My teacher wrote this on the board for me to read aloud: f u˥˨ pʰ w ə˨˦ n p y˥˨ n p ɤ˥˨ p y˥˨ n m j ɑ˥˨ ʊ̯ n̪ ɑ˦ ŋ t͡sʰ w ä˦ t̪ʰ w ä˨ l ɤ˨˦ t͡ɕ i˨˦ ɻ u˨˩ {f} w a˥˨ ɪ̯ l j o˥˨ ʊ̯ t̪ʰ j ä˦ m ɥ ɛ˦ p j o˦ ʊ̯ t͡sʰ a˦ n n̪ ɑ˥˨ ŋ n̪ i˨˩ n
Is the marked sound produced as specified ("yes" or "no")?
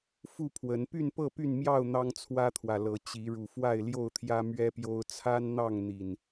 yes